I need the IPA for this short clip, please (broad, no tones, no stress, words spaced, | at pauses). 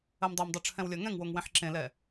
ɜmdˤɜmdˤo ʈ͡ʂʰɛ̃wlʲɜŋɛ̃ŋwoŋ wẽħǁẽlɛ